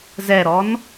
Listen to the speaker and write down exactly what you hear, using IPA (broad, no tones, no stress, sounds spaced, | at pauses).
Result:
z ɛ ɾ ɔ n